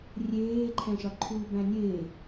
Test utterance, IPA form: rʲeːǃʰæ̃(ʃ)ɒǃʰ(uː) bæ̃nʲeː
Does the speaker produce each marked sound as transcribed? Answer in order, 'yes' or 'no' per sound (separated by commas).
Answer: yes, yes